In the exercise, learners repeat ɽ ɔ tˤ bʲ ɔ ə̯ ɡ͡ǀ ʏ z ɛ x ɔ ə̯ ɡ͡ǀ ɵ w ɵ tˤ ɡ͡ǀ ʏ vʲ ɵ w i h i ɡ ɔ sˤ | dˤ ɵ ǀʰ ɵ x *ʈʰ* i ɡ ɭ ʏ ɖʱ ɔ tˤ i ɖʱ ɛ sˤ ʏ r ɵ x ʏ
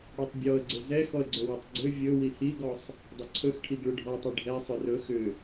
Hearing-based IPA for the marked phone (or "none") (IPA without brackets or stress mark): ʈʰ